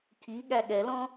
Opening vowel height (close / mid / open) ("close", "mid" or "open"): close